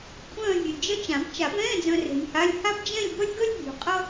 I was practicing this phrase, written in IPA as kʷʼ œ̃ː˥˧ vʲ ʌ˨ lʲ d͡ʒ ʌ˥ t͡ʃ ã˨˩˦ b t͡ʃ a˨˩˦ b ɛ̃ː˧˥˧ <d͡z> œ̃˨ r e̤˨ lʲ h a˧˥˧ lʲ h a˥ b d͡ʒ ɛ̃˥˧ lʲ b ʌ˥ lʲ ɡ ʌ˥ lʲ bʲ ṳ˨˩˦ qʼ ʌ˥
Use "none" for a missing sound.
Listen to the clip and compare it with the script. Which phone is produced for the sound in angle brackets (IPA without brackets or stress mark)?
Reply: d͡z